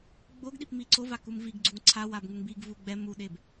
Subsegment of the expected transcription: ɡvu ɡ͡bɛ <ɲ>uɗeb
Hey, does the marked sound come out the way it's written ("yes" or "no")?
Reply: no